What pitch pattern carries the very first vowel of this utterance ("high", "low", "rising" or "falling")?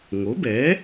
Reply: rising